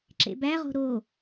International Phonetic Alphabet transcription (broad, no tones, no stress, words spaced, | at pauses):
ǁḛbæʁo̤ ɾo